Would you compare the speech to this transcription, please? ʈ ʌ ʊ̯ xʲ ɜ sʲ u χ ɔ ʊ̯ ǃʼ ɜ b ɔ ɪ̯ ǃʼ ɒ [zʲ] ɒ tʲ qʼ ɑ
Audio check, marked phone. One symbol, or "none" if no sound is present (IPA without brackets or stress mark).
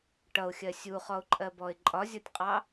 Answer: zʲ